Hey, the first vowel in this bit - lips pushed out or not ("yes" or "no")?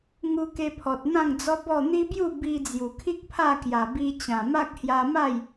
yes